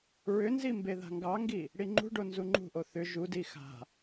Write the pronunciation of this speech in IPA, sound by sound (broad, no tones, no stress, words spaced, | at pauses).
ɹʏnzi mbeða̤ŋɡɑŋɡi | ɽiŋ͡ǃṳɖo nzuŋ͡ǃṳʔo θʏ ʒudi xa̤